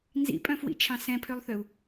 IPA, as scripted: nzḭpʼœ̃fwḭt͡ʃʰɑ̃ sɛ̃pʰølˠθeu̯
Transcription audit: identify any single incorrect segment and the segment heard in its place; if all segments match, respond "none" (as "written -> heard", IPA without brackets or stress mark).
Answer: e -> ø